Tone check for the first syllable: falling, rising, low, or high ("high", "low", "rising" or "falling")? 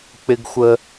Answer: high